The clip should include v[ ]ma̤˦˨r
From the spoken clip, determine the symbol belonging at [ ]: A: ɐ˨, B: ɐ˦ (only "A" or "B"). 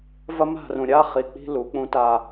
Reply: B